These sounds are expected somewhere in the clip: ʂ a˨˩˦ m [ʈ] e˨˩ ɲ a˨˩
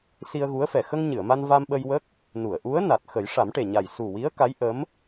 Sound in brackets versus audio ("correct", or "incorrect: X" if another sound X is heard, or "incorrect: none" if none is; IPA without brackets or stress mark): correct